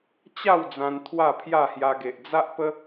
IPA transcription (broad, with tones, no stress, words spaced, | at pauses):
t͡ɕa˥˧w d͡zã˧n t̪ʰwa˥˧pʰja˥˧hja˧ɡe˨ʔ d͡za˦ʔpə˦